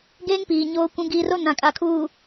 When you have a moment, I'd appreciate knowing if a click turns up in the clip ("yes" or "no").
no